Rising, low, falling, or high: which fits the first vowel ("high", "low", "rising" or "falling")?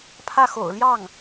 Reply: falling